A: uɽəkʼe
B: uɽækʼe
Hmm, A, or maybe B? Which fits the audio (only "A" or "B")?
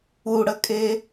A